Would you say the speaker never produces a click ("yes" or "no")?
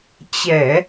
yes